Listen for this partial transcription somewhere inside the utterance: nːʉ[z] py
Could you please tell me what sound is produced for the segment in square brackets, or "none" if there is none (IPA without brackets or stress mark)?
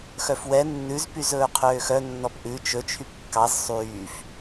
z